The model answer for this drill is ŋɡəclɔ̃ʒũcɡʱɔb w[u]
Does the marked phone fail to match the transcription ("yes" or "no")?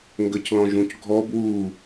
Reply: no